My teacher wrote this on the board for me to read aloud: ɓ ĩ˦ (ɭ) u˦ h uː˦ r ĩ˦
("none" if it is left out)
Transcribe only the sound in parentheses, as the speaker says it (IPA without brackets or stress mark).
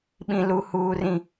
l